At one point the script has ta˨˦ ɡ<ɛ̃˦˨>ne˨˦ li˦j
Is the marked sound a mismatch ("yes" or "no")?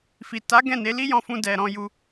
no